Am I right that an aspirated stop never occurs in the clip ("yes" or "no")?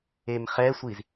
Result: yes